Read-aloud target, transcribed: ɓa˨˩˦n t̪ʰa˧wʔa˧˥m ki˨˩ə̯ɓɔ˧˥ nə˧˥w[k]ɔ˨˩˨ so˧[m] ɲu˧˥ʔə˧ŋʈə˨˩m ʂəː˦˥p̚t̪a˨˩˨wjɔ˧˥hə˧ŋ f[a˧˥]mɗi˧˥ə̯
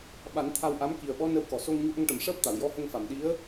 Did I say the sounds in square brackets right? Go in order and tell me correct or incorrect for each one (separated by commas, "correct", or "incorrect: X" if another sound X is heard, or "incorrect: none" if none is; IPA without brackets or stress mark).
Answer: correct, incorrect: ŋ, incorrect: a˨˩˨